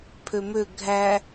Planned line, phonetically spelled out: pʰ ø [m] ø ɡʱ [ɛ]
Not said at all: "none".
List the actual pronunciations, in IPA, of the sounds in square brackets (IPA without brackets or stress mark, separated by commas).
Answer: m, æ